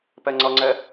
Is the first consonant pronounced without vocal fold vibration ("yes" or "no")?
yes